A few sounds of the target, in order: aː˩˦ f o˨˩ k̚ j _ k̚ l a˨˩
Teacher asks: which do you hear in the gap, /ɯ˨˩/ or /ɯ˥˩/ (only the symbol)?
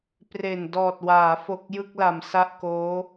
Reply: ɯ˥˩